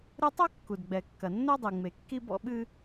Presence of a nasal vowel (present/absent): absent